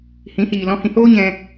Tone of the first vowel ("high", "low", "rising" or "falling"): rising